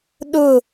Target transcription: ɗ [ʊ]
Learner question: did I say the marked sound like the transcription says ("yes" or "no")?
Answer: yes